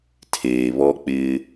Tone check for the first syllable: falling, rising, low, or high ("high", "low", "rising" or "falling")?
low